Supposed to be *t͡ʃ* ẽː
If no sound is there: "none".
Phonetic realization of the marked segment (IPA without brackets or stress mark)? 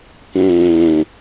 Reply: k